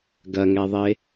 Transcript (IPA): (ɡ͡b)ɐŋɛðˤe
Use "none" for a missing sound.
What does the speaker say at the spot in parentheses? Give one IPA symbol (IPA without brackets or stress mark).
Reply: ɡ